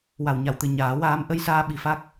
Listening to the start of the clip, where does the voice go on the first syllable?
low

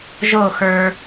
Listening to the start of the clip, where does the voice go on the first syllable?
falling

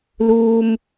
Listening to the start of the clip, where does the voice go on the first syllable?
high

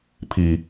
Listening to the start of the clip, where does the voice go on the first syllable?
low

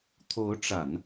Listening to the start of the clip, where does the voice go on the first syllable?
rising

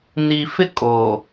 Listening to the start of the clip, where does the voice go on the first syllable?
low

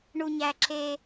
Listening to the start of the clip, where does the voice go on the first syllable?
high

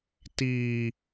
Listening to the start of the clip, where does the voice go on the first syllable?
low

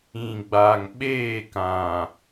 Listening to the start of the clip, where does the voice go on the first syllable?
low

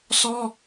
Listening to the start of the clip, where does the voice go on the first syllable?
high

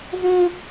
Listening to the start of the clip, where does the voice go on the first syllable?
high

